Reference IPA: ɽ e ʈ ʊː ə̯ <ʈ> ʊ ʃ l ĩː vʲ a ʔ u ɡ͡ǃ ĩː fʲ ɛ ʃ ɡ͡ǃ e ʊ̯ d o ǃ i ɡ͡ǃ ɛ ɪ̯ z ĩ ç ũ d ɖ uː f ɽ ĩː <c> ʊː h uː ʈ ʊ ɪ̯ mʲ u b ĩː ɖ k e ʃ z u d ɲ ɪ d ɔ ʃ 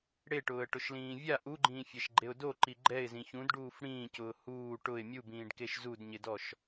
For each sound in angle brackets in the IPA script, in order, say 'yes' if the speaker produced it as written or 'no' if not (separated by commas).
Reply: yes, yes